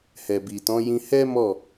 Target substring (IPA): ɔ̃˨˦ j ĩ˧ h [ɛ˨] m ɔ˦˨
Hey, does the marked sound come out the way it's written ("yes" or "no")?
no